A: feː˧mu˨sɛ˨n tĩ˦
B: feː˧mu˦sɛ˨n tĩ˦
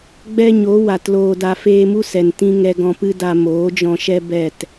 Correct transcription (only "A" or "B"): B